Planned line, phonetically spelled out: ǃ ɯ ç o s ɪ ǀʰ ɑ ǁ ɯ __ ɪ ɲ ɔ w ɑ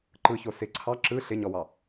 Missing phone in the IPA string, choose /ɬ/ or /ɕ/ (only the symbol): ɬ